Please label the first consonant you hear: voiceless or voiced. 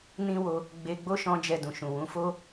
voiced